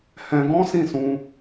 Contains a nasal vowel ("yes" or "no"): yes